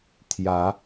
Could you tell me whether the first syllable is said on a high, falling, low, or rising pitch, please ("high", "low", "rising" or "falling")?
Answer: rising